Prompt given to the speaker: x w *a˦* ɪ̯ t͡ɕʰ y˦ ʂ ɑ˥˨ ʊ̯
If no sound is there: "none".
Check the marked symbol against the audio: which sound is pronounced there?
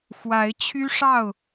a˨˦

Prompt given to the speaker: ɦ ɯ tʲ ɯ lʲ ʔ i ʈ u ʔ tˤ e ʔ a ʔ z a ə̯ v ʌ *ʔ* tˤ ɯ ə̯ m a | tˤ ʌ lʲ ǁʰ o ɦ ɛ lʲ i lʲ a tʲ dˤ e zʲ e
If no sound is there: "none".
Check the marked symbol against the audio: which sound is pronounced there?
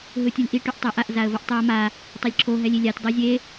ʔ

